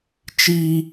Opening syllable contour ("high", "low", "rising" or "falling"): high